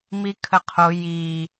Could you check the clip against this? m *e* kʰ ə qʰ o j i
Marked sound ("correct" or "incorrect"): incorrect